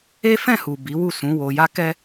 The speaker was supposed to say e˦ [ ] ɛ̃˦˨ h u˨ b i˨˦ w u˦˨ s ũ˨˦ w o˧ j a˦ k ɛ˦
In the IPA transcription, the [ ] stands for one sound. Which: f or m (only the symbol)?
f